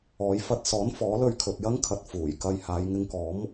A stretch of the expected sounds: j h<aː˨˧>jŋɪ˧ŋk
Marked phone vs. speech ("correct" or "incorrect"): correct